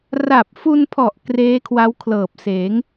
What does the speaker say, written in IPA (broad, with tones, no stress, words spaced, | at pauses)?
ra˨˩p̚fu˧npʰɔ˨˩ʔ kreː˦˥kʰwa˦˥wkʰlɤː˨˩p̚seː˩˦ŋ